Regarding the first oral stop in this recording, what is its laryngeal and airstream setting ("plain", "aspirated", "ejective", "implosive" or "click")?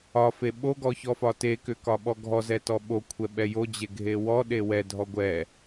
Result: implosive